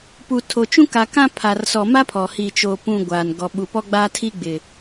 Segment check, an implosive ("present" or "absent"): present